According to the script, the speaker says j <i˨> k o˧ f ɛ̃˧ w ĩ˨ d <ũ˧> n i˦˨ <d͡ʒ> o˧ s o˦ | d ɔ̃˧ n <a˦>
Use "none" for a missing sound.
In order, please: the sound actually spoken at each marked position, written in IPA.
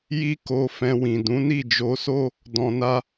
i˦, ũ˨˦, d͡ʒ, a˦

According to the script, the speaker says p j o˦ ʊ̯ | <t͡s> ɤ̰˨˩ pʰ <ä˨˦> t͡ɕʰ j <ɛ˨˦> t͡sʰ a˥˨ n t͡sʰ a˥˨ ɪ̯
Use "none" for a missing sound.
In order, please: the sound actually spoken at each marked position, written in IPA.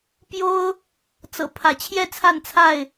t͡s, ä˨˦, ɛ˥˨

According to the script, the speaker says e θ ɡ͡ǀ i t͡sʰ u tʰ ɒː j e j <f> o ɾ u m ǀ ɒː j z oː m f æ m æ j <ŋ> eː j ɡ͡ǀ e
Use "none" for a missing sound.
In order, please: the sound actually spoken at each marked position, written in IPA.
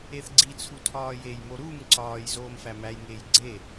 m, ŋ

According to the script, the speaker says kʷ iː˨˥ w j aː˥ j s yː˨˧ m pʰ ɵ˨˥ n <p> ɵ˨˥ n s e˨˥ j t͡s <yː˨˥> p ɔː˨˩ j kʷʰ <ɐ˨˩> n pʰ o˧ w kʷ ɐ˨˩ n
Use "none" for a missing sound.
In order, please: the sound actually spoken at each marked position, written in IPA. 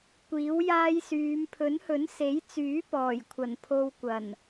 h, yː˨˥, ɐ˨˩

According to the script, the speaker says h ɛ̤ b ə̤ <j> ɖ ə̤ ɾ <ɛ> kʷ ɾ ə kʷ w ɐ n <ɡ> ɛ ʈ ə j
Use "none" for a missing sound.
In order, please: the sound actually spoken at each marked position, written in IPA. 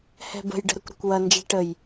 j, ə, d͡ʒ

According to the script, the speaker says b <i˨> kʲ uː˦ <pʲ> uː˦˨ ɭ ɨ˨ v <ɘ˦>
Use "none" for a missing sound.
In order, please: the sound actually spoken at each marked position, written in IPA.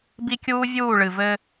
i˦, vʲ, ɘ˦

